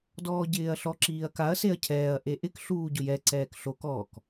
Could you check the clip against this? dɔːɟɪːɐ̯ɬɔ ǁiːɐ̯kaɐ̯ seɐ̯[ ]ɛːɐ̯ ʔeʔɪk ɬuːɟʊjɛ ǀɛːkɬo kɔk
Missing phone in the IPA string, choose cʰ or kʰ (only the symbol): cʰ